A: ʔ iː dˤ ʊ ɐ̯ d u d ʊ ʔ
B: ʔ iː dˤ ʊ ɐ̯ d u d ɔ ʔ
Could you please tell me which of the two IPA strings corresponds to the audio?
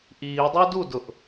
A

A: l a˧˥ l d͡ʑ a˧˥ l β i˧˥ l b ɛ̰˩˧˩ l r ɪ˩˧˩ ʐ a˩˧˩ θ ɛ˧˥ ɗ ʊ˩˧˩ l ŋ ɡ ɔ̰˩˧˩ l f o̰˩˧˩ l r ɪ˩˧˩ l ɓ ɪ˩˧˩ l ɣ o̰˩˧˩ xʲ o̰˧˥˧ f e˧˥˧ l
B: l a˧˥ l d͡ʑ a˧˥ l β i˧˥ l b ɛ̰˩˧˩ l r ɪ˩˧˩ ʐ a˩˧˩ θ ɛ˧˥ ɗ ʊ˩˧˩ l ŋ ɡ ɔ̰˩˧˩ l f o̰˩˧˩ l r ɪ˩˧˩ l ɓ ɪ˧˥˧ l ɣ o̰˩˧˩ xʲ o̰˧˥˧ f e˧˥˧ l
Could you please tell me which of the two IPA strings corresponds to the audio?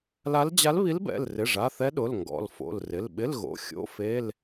B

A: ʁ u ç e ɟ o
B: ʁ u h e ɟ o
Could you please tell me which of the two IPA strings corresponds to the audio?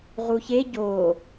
A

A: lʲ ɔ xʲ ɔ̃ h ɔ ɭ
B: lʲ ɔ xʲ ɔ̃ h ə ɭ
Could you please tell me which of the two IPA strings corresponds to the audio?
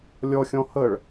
B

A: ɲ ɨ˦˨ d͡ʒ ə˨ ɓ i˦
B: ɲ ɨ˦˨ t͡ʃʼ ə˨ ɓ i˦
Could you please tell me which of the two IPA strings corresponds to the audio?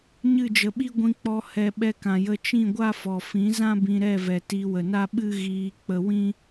A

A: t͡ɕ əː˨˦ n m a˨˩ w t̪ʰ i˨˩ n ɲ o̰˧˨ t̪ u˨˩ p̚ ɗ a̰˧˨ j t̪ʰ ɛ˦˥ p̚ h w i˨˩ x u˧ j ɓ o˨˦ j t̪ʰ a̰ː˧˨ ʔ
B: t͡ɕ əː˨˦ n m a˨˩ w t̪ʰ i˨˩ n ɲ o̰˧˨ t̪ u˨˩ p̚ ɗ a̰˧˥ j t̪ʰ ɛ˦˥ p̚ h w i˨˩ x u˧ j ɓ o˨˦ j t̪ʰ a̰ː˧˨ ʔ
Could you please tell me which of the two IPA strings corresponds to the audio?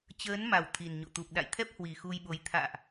A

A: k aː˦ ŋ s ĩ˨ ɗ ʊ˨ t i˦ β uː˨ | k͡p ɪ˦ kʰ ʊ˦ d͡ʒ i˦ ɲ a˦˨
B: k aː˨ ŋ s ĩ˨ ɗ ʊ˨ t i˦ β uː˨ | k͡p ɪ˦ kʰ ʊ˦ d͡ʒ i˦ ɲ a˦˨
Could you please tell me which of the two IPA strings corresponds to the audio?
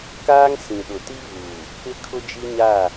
A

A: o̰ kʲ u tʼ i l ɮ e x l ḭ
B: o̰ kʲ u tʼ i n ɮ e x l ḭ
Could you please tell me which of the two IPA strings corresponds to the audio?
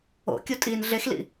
B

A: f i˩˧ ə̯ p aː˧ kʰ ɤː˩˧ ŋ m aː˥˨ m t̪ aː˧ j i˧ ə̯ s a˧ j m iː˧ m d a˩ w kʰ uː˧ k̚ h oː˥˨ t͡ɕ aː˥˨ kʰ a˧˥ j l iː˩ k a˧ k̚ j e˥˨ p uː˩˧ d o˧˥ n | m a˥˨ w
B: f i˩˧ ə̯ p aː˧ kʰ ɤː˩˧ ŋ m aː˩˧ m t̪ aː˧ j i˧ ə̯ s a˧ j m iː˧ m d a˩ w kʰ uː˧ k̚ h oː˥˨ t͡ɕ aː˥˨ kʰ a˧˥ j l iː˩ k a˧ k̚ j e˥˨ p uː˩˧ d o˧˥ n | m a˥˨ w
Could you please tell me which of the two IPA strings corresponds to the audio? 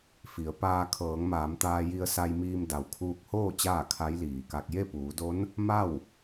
B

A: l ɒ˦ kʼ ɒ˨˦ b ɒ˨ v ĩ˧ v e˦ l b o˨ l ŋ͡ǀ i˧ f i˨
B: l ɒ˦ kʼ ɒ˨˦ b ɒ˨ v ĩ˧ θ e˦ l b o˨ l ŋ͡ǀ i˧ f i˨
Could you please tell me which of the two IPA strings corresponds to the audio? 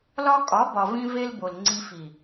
A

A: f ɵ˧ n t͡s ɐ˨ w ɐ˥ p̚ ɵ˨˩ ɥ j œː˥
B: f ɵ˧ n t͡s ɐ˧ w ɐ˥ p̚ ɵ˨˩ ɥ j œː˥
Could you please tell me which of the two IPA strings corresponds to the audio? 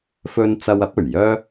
B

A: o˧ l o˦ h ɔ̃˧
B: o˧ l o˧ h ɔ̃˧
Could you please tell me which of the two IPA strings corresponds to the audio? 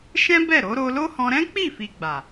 A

